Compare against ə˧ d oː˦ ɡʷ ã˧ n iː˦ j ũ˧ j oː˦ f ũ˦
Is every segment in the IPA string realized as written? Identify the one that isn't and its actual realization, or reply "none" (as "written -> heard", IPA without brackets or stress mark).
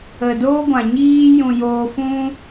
n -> ɲ